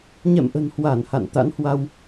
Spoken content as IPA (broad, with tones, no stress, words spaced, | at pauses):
ɲɛ̰˧˨mʔə̤˨˩nhwa˧˩n ha̰˧˨n t̪a̰˧˥nhwa˧w